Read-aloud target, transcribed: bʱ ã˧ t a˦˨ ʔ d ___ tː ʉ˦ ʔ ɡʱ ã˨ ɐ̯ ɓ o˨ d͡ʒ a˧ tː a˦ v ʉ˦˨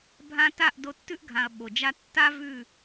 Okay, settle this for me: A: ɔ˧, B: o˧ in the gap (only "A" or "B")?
B